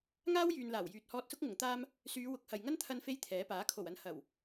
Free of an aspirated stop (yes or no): no